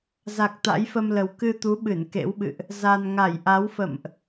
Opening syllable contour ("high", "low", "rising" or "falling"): low